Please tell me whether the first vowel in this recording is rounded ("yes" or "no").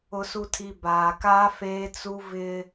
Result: yes